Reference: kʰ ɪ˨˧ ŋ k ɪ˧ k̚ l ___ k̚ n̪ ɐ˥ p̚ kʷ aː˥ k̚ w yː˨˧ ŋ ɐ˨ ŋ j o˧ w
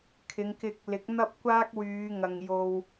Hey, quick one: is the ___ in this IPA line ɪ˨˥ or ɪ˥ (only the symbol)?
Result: ɪ˨˥